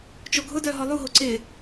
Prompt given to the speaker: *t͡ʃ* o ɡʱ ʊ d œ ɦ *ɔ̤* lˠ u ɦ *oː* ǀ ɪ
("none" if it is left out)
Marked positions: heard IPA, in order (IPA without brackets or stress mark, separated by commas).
t͡ʃ, ɔ, o